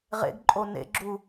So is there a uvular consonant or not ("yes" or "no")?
yes